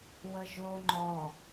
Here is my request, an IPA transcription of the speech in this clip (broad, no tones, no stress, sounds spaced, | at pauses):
w ə ʒ o ŋ͡ǃ ɔ